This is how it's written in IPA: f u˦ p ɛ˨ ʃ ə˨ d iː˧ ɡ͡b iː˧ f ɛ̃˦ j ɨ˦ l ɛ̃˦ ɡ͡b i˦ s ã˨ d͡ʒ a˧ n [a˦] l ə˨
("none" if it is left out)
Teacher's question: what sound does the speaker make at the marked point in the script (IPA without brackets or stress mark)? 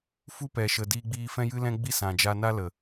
a˦